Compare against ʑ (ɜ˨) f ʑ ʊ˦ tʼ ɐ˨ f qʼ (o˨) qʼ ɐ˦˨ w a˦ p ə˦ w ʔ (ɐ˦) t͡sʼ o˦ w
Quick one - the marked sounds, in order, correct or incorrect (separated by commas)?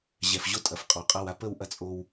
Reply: incorrect, incorrect, correct